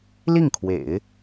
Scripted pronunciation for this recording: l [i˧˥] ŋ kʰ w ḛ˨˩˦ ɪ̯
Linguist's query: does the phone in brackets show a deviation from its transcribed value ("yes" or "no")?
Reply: yes